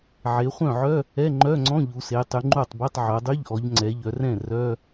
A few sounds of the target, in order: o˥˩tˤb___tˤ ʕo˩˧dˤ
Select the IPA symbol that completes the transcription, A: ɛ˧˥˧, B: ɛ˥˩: A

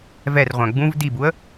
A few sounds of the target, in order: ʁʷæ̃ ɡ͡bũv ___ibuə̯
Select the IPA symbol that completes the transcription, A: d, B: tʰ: A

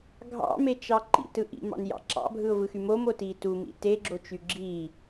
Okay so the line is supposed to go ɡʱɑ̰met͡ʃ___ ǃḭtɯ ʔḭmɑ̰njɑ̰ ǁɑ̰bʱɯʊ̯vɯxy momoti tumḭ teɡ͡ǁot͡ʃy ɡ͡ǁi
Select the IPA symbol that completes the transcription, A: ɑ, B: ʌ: A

